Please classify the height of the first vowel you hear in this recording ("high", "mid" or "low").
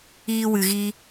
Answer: high